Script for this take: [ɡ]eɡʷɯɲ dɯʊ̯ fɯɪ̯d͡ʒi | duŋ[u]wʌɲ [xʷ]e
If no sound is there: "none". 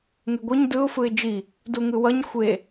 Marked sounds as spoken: ŋ, ɯ, xʷ

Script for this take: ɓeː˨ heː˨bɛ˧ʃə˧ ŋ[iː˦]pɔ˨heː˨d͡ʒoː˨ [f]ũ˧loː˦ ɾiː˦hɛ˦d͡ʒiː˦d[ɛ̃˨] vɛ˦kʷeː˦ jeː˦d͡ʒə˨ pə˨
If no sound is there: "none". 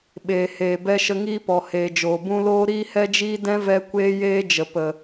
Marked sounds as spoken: iː˦, b, ɛ̃˦

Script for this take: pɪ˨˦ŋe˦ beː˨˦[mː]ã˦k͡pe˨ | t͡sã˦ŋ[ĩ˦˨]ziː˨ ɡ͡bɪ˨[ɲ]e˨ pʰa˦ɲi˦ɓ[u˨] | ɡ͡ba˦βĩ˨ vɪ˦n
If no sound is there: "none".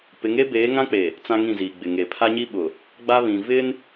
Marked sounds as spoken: ŋ, ĩ˦˨, ŋ, ʊ˨

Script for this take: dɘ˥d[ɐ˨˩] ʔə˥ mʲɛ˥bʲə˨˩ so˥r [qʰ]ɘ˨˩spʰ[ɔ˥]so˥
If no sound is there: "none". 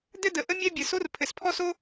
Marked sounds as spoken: ə˨˩, pʰ, ɔ˥

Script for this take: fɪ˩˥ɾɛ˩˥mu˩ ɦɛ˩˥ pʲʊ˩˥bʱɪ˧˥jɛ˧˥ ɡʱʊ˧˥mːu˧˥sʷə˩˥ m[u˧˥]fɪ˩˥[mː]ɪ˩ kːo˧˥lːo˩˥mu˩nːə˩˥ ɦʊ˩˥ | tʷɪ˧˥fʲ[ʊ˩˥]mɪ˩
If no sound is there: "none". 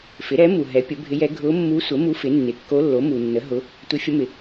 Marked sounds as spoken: u˧˥, nː, ʊ˧˥

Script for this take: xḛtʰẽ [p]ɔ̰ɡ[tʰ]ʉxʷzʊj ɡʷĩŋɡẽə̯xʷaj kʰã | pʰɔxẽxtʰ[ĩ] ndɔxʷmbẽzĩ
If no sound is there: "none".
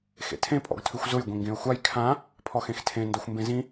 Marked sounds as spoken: pʼ, tʰ, ẽ

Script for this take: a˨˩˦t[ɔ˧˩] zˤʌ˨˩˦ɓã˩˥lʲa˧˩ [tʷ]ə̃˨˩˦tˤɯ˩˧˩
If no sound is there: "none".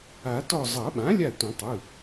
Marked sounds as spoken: ɔ˧˩, tʷ

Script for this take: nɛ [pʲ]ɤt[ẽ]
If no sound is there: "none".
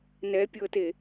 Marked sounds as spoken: pʲ, e

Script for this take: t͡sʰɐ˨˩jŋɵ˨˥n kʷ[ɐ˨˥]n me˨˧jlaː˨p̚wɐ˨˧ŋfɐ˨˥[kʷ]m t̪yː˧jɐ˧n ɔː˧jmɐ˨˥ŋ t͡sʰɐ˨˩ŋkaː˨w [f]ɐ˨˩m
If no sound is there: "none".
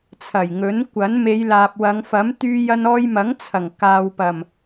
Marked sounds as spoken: ɐ˨˥, none, p

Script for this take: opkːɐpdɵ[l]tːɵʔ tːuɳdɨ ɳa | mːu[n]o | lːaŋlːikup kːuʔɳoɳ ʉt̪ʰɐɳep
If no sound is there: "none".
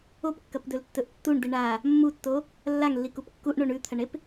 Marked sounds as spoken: l, tː

